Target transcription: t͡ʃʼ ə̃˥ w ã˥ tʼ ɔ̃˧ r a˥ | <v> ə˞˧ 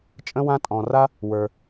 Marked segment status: incorrect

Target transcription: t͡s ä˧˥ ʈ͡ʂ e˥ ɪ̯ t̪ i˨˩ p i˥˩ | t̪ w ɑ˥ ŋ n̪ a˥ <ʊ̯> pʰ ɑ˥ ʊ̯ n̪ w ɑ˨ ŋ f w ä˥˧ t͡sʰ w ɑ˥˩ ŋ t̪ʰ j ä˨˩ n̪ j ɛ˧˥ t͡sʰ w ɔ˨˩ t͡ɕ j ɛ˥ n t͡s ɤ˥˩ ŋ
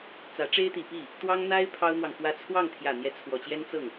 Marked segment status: incorrect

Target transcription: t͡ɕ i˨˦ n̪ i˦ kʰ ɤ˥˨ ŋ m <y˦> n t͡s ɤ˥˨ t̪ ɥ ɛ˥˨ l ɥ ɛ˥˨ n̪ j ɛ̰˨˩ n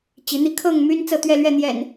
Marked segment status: correct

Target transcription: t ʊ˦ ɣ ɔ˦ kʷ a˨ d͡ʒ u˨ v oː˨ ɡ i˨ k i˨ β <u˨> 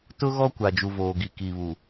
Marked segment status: correct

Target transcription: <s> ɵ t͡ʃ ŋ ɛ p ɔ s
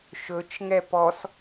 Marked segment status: incorrect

